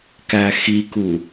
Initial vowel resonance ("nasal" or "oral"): oral